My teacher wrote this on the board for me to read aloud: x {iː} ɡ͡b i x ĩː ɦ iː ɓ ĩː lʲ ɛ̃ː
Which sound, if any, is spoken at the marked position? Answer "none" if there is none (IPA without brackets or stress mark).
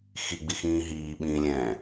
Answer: i